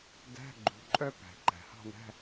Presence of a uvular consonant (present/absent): absent